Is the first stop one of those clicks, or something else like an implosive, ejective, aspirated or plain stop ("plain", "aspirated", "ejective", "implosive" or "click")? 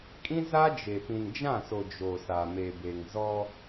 ejective